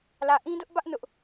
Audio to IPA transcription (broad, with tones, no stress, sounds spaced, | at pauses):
l ä˨ ʔ ĩ˦ d ʊ˦ ʔ b ä˦ ʔ n ʊ˦ ʔ